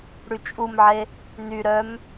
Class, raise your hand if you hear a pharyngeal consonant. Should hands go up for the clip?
yes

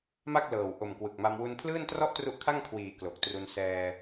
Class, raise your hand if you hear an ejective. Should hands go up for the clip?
no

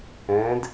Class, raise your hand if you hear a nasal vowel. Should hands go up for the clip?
yes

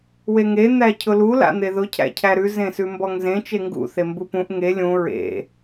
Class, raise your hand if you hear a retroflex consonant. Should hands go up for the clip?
no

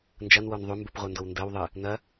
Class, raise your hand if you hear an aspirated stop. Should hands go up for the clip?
no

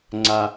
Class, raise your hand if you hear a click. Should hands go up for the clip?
yes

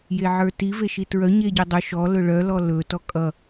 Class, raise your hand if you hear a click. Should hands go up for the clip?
no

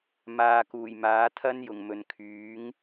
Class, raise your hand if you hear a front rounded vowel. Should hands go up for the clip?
yes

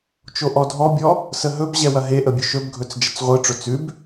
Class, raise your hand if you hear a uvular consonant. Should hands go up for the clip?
yes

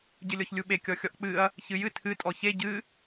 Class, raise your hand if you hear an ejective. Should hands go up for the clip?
yes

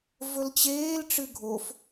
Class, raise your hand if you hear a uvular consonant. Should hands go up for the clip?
no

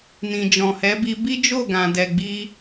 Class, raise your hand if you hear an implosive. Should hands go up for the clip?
no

